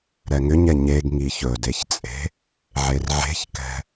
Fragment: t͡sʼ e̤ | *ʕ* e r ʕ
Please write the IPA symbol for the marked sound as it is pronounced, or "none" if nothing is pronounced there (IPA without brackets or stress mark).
ʕ